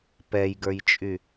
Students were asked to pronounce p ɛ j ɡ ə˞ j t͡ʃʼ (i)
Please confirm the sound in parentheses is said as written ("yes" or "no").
no